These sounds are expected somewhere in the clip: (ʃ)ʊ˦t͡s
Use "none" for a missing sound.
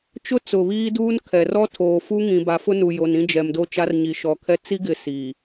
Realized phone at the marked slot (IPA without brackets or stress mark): t͡ʃ